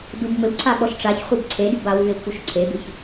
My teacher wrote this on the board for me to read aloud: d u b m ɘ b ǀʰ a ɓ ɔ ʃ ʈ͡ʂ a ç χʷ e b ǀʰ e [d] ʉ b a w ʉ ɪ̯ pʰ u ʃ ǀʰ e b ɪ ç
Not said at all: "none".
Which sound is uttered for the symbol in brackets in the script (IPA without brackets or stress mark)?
d